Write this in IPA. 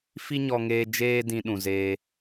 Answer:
f i˦ ɲ ɔ˧ ŋ eː˧ d͡ʒ eː˧ d ĩ˦ ɗ ũ˧ z eː˦

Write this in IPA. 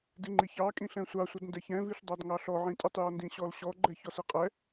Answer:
d ɪ ŋ͡ǃ i ç ɑ kʼ ĩ ɬ ɛ̃ sʷ ɑ sʷ ʌ d n d ɛ ç ɛ̃ v i ɬ dˤ ɑ d ŋ ɑ ɬ ɔ ʕ ĩ tʼ ɪ tˤ j ɔ n d ĩ ɕ ɔ l ɕ ɔ ɡ͡ǃ ɛ ç ɔ s i qʼ ɛ

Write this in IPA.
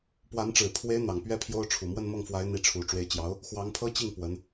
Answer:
p w a˧˥ n ʈ͡ʂ ɻ̩˨˩ pʰ w e˧˥ ɪ̯ n̪ ɑ˨˩ ŋ p ɥ ɛ˥ pʰ j o˥ ʊ̯ ʈ͡ʂʰ u˨˩ m w ə˥˧ n m ɤ˥˩ ŋ f w a˧˥ ɪ̯ n̪ i˧˥ ʈ͡ʂʰ u˨˩ ʈ͡ʂ w e˧˥ ɪ̯ t͡ɕ j ɑ˧˥ ʊ̯ | x w ɑ˧˥ ŋ pʰ ɤ˥ t͡ɕ i˥˩ ŋ p w ə˧˥ n

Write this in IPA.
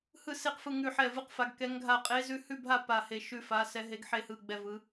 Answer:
h ɯ˥˨ s e˥˨ q f ɯ˥˨ ŋ ʉ˥˨ ħ ɛ˥˨ v ɯ˥˨ q f a˧˥ ɡ k ɛ˧˥ ŋ ɡʱ a˥˨ qʼ e˧˥ z ʉ˧˥ h ʉ˥˨ bʱ a˥˨ p a˥˨ h e˥˨ ʃ ʉ˥˨ f a˧˥ s ɛ˧˥ ɦ e˧˥ ɡ ħ e˥˨ h ɯ˥˨ ɡ͡b ɛ˥˨ v ɯ˧˥

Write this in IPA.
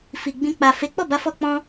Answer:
f i˨ ɡ͡b ĩ˧ k͡p a˨ f e˨˦ k͡p ɔ˦˨ b a˧ f ɔ˦ k͡p ɔ̃˦

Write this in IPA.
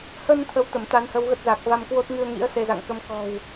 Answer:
h ə˧ n t̪ʰ ə˧ w t̪ ə˧˩ m t̪ a˨˦ n h ə˧ w ɣ ə˦˥ t̚ z a˨˩ k̚ v a˧ m k w o˦˥ t̚ ŋ ɨ˧ ə̯ ŋ ḭ˧˥ ə̯ s e˧ z a̰˧˨ ŋ k ə˨˦ m k ɔ̤˨˩ w

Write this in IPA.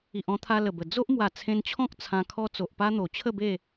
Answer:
i˨ ʔ ɔ̃˧ t̪ʰ a˧ l ə˨˩ b ə˨˩ d͡z o˦ ʔ m w a˨˩ t͡sʰ ẽ˧ n t͡ɕʰ ɔ̃˦ k̚ t͡sʰ ã˧ kʰ ɔ˦ t͡s o˨ ʔ p a˦ n̪ o˨˩ t͡ɕʰ ə˥˧ b e˥˧

